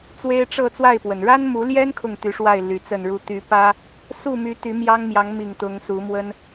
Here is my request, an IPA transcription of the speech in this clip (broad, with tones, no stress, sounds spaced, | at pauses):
t͡s w e˦ ɪ̯ ʈ͡ʂ ɤ˥˨ t͡s w a˥˨ ɪ̯ p w ə˩ n ɻ a˦ n m u˨˦ l j ɛ˦ n kʰ ʊ˥˨ ŋ t̪ y˨˦ ʂ w a˥˨ ɪ̯ l y˨˦ t͡s ə˥˨ n ɻ u˥˨ t̪ y˨˦ p ä˦ | s u˥˨ m y˨˦ t̪ y˨˦ m j ɑ˦ ŋ m j ɑ˨˦ ŋ m i˨˩ ŋ t̪ ʊ˨˦ ŋ s u˨˦ m w ə˦ n